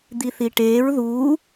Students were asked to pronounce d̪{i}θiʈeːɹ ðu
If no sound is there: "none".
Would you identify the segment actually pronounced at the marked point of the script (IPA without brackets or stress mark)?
i